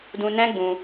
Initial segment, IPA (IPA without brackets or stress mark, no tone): d